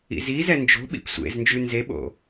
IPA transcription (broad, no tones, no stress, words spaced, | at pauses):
ḭzizɛ nd͡ʒo̤ɓḭp sʷḛznd͡ʒʉ nzeɓo̰